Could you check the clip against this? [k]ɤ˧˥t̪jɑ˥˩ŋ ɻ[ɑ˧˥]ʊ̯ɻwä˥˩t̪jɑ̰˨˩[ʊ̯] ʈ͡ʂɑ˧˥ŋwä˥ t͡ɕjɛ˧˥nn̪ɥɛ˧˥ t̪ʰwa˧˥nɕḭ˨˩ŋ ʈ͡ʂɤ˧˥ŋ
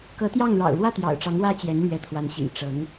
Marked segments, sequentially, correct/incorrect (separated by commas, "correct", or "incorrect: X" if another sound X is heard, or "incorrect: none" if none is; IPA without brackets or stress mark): correct, incorrect: ɑ̰˨˩, correct